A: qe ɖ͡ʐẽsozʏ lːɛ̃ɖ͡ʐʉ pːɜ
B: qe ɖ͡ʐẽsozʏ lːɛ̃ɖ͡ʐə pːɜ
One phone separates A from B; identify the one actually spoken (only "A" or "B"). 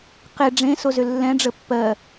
B